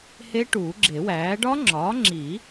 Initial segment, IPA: h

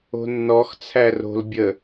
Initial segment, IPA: o̤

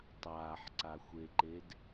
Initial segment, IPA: tˤ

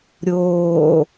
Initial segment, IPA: ɾʲ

